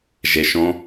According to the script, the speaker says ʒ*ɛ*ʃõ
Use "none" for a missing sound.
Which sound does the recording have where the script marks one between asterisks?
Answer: e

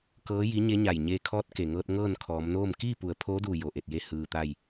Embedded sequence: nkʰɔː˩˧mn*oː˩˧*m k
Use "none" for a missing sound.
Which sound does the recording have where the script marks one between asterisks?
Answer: oː˥˨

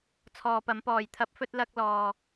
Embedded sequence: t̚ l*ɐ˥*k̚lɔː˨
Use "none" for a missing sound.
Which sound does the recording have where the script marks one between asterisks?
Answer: ɐ˧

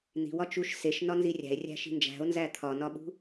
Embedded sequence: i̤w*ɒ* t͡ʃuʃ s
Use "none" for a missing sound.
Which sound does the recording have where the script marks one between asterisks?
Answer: ɒ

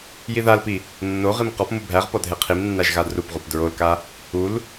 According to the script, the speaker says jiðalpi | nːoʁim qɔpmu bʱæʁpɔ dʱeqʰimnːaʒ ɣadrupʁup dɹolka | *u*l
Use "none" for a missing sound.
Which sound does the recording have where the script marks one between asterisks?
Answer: u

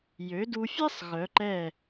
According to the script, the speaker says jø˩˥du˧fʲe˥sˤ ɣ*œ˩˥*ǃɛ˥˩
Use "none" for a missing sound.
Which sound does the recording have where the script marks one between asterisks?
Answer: œ˩˥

